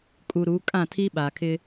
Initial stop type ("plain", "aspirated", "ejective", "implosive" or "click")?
ejective